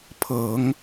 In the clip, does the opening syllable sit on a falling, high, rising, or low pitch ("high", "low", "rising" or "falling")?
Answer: low